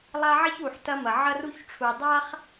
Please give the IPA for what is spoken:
lˠ a˦ ʕ ɐ˥ ç u˩ ħ t ɐ˦ m ɐ˩ ʕ ɐ˥ r u˥ ç ʈ͡ʂʰ u˨ dˤ a˥ χ

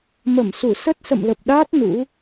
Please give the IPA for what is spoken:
m ə˧˩ m s u˧˩ s ə˦˥ t̚ s ə̰˧˨ m l ə˨˩ p̚ ɗ aː˦˥ t̚ n ṵ˧˥

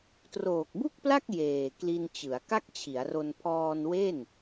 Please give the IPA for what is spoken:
t r oː˨˩ k̚ b u˥˩ k̚ p l a˥˩ k̚ j eː˨˩ k l i˧ n t͡ɕ ɯ˩˦ a̯ k a˥˩ k̚ t͡ɕʰ i˩˦ a̯ r o˧ n pʰ ɔː˧ n w e˥˩ n

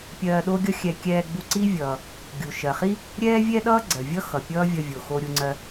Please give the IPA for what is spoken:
pʲ ɜː˧ ɗ o˥ ɡʲ ʌ˥ xʲ ɛ˧ kʲ ɛː˧ ɡ͡b u˧ ǀ i˥ vʲ ʌː˩ | ɡʲ u˩ ʃ ɜ˩ χ i˥ | ɾʲ ɛː˥ vʲ ɛ˥ ɗ ʌː˥ ɡ͡ǀ ɜ˩ vʲ ʌ˥ x ʌ˩ pʲ ʌː˥ vʲ ʌ˧ vʲ o˩ x o˧ ɾʲ u˧ ŋ͡ǀ ɜ˧

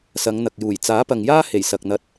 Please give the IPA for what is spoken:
s ɐ˨˧ ŋ n̪ ɐ˨ k̚ j uː˨˩ j t͡s aː˨˥ p ɐ˨ ŋ j aː˥ h e˨˩ j s ɐ˨ k̚ n̪ ɐ˧ t̚

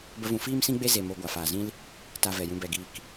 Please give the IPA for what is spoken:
b ə˦ v ũ˧ f iː˦ m s ĩ˦ ɡ͡b e˦ z e˧ m o˧ ɡʷ a˨ f aː˨ z ĩ˦ l | t a˧ v ɛ˨ j ũ˧ b ɛ˨ ɡ iː˨ k

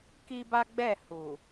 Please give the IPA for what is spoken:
k i˦ b a˦ ɡ͡b ɛ˦˨ h u˨

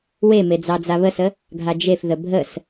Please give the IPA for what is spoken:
w e m e d͡z ɑ d͡z a β ə s ə | ɡʱ a d͡ʒ e f ð ə bʱ ə s

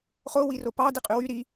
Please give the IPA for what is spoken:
χ o w i r o p ɑ d i qʼ y w y ɾ i

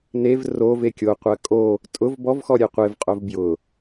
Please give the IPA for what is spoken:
n e v r o v e kʲ o qʷ ɜ kʼ o | tʼ ʊ v b ɔ v x ɔ ɾʲ e qʷ e v qʼ o v b j ʊ

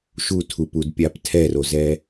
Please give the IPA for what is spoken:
ʃ u tʰ u p u d pʲ a p tʰ ɛ r o z ɛ

